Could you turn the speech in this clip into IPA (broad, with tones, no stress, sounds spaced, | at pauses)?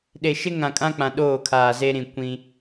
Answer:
ɗ e˨ ʃ ɪ˦ ŋ ã˨ kʼ ã˦ k͡p ã˨ ɗ oː˦˨ kʰ aː˨ z e˦ ɾ ĩ˨ kʷ ĩ˦